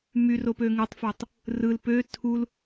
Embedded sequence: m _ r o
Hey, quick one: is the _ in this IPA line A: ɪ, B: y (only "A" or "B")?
B